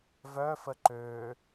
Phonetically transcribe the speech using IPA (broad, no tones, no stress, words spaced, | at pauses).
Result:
vœfə ǃø